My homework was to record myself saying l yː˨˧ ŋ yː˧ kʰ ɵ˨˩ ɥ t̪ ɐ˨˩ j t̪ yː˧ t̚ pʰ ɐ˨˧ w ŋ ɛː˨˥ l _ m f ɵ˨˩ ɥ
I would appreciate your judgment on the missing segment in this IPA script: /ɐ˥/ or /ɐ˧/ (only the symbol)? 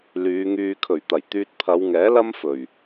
ɐ˥